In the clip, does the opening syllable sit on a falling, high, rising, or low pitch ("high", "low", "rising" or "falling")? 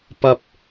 low